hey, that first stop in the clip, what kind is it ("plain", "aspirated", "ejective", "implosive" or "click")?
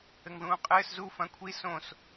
ejective